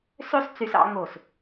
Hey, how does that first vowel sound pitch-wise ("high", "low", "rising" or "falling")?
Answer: high